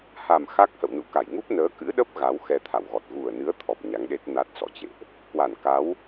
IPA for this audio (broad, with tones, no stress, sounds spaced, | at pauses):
h a˨˩ m x a˦˥ k̚ h ə̰˧˨ w n ṵ˧˨ k a˧˩ j ŋ u˦˥ p̚ n əː˨˦ k ɨ̰˧˥ ɗ ə˦˥ p̚ ɣ a˨˦ w x ɛ˧ t̪ʰ a̰˧˨ w ɣ ɔ˨˩ t̚ ɣ u˨˩ ə̯ n ɨ˨˦ ə̯ t̪ʰ ɔ˨˩ p̚ ɲ a˨˦ ŋ ɗ e˦˥ t̚ n a˦˥ t̚ s ɔ̰˧˨ t͡ɕ ḛ˧˨ ʔ | k w a˧˩ n k a˨˦ w